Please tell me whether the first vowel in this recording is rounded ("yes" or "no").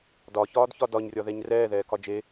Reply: yes